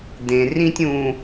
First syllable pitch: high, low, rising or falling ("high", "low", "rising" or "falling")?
low